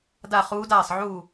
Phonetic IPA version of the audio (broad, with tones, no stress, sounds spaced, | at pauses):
d a˥˧ χ uː˦˥ d aː˥˧ sˤ ʕ uː˥˧